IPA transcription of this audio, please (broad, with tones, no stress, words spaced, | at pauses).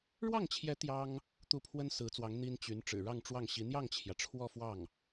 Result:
ɻwɑ˥˩ŋt͡ɕʰjɛ˧˥ t̪jɑ˥ŋ | t̪u˥˩pʰwə˥n sɹ̩˧˥t͡swɑ˧˥ŋ n̪i˥nt͡ɕy˧˥n ʈ͡ʂɻ̩˨˩ɻɑ˥˧ŋʈ͡ʂwɑ˥˩ŋɕi˧˥ n̪jɑ˥˩ŋt͡ɕʰjä˩ ʈ͡ʂʰwɔ˥˧fwɑ˥˩ŋ